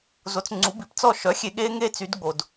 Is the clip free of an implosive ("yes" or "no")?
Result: no